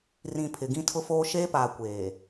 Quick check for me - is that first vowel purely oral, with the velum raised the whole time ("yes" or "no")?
no